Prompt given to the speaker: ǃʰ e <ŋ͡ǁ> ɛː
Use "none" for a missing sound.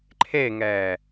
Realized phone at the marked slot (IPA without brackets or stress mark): ŋ